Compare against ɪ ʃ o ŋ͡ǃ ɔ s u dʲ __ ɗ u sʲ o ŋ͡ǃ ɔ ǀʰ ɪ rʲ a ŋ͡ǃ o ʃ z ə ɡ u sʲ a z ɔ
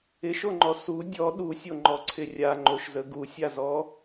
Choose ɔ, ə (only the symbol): ɔ